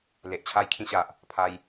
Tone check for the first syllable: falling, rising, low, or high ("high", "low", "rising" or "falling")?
low